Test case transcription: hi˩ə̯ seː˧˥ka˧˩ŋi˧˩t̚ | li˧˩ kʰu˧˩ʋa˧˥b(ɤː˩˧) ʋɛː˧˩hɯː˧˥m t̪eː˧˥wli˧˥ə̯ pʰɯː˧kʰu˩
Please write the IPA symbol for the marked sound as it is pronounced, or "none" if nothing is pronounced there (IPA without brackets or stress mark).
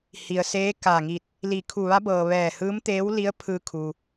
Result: ɤː˩